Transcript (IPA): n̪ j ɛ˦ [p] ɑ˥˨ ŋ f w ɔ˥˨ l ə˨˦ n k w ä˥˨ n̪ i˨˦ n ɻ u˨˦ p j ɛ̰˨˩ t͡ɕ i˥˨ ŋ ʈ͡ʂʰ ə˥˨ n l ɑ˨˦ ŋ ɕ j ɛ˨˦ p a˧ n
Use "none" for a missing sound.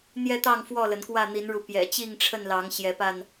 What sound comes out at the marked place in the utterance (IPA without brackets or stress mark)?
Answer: t̪